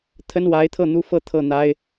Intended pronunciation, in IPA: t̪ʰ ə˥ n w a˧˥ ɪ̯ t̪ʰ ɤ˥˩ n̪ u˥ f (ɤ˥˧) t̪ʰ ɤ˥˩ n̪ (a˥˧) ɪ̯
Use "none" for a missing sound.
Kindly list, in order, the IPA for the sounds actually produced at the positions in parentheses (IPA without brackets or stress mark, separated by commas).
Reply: ɤ˥˧, a˥